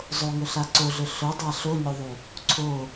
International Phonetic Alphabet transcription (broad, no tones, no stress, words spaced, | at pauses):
zˤoŋɵɬa ǀoɮɵ ɬɵdˤa ɬoɲoðˤu | ǀʰo